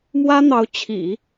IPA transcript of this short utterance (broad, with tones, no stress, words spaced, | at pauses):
mwä˥n̪ɑ˧˥ʊ̯ t͡ɕʰḭ˨˩˦